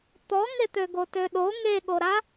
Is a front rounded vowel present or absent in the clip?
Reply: present